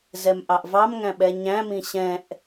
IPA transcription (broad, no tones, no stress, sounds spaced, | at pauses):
z ɛ m ʔ ɑ ʔ v ɑ m ŋ æ̃ ɓ ɛ ɲ æ̃ m ĩ ɕ ɛ̃ ʔ